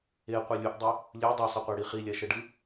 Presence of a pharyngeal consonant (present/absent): absent